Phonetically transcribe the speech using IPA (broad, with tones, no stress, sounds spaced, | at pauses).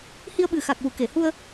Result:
h i˧ ə̯ ɓ ɨ˨˩ x a˨˩ k̚ w u˨˩˨ k e˨˩˨ h u˧ ə̯